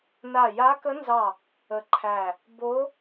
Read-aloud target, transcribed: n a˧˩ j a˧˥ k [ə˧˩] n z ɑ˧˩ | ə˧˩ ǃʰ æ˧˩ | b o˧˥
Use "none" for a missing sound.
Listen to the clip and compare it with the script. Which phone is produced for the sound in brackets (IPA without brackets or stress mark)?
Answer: ə˧˥